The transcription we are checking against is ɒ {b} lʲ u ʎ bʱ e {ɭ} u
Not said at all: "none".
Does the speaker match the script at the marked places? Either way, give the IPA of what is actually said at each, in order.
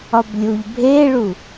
b, ɭ

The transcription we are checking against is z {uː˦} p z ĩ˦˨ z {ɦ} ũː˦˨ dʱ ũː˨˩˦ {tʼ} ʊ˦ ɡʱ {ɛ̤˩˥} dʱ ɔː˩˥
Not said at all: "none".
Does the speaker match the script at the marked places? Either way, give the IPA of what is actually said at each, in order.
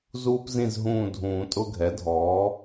uː˦, ɦ, tʼ, ɛ˩˥

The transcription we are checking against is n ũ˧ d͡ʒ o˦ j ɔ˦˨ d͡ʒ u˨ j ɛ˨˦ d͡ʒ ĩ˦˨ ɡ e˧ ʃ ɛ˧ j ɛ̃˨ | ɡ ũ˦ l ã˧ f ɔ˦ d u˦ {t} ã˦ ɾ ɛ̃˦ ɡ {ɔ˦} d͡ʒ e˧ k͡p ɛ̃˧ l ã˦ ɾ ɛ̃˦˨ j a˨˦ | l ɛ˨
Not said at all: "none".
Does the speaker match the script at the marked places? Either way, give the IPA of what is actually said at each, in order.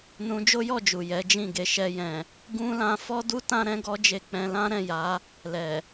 t, ɔ˦

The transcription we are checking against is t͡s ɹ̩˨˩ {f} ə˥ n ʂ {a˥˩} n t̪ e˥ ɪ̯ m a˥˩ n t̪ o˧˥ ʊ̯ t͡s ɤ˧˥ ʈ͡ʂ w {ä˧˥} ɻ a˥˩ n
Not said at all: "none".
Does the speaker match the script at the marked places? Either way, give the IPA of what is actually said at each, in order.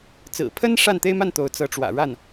pʰ, a˥˩, ä̰˨˩

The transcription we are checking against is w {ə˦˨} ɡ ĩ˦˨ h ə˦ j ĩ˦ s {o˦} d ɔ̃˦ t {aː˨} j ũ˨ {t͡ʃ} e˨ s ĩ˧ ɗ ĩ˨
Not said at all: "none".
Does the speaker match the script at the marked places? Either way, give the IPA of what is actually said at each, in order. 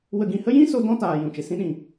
ə˦˨, o˦, aː˨, t͡ʃ

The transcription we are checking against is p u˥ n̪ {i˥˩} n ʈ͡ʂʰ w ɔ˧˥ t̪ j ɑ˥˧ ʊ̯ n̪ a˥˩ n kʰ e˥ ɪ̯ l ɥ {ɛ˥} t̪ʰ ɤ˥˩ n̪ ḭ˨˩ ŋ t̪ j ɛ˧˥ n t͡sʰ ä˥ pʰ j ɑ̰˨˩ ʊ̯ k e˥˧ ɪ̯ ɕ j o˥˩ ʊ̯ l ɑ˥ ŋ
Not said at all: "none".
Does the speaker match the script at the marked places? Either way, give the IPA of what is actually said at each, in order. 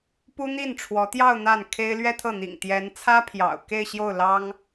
i˥˩, ɛ˥

